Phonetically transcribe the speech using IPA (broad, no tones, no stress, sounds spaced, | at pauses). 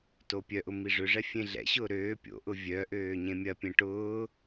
t o pʲ œ ʔ ʊ m i ʐ ʏ ʐ ɛ fʲ ẽ ɮ ɛ̰ ɕ ʊː ɾ øː pʲ o̰ ʔ ʊ vʲ œ ʔ øː ɲ ẽ mʲ ɐ pʲ ẽ ʈ ʊː